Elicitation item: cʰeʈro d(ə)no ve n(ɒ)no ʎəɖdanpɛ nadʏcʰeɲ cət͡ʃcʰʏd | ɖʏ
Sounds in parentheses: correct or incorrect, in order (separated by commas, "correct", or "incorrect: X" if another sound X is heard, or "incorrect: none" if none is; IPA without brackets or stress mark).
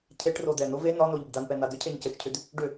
incorrect: ɛ, correct